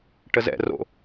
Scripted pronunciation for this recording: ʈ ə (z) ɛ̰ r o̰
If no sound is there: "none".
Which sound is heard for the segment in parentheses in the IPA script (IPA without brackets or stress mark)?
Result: z